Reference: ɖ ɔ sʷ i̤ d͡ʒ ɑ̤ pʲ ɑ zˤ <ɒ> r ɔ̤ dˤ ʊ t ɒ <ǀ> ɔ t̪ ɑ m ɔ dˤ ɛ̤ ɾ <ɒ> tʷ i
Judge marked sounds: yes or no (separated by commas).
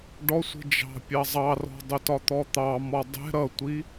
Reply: no, no, no